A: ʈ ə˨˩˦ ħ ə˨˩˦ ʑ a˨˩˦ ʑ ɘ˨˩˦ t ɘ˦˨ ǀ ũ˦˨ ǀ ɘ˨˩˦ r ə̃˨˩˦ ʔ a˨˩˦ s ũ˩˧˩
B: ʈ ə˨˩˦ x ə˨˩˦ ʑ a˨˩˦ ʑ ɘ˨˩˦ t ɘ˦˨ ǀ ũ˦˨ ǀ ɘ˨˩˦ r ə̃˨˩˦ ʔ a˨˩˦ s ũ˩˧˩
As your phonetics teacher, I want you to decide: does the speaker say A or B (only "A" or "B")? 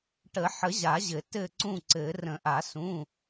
A